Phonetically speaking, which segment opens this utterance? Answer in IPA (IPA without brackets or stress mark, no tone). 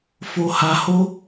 f